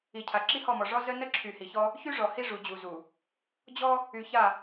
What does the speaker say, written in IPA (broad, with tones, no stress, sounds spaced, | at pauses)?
i˨ cʰ a˨ ǁ i˦ h ɔ˦˨ m ɔ˨ ʐ ɔ˦ z ə˦ n ə˦ ǁʰ y˨ h i˨ ç ɔ˦ | ç y˦ ʐ ɔ˨ h i˦ ʐ u˨ d͡ʑ u˨ z u˨ | d͡ʑ ɔ˦ | y˨ ç a˦˨